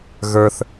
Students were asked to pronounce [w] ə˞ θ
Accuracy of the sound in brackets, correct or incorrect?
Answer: incorrect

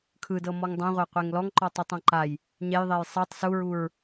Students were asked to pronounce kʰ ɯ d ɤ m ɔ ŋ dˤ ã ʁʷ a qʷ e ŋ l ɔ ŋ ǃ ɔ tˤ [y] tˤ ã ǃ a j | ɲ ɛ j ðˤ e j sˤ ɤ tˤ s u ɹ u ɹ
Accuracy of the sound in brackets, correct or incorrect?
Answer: incorrect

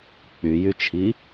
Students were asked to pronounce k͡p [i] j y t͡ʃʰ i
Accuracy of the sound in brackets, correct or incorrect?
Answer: incorrect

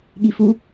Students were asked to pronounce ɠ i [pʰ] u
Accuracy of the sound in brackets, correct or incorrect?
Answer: incorrect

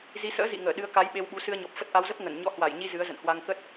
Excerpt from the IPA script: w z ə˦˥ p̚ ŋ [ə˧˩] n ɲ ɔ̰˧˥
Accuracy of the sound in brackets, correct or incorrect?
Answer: correct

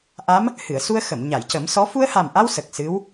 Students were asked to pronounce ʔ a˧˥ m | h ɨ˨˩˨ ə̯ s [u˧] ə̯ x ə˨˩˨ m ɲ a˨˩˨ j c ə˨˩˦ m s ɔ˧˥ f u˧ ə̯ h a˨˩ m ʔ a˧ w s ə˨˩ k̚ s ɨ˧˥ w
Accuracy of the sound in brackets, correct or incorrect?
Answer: correct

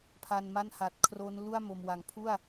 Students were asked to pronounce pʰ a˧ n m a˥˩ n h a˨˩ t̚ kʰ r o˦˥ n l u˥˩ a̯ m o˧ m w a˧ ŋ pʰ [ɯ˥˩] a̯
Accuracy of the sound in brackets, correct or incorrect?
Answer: incorrect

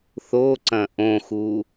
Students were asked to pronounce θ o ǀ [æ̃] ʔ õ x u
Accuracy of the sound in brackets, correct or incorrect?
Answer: incorrect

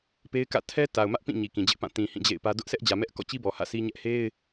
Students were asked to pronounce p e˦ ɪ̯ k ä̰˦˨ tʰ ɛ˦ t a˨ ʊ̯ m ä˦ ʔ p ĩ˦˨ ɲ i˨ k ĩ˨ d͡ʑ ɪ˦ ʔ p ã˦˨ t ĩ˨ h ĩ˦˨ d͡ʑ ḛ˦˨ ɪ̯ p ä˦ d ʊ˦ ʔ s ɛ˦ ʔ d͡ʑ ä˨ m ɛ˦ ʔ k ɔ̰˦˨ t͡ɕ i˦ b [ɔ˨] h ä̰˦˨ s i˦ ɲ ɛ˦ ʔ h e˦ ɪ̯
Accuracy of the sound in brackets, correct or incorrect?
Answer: correct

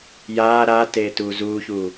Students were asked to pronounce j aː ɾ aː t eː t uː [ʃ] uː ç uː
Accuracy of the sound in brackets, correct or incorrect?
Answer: incorrect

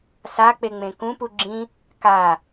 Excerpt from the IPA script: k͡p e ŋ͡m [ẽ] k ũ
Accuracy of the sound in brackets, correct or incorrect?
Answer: correct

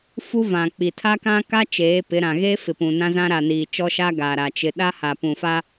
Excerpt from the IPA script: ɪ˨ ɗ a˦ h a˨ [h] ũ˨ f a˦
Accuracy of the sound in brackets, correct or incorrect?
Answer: incorrect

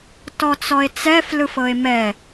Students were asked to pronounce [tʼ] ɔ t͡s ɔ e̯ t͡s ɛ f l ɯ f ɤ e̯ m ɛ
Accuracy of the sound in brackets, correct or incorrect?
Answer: incorrect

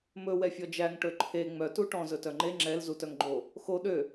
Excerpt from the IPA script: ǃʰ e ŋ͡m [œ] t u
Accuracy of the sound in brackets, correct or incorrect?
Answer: correct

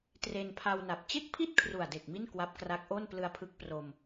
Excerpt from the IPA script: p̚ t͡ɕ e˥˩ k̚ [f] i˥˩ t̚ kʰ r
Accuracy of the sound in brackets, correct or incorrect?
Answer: incorrect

